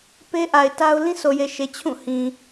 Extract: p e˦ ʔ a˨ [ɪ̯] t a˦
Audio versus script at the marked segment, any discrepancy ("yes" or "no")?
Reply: no